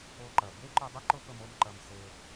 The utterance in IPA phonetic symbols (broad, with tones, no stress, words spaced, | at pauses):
o˧ǃɐ˨ be˦ǃʊ˧dˤə˦ ǃʊ˦pə˧mo˧m ǃɐ˧mse˧